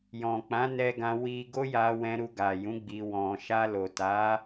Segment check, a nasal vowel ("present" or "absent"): present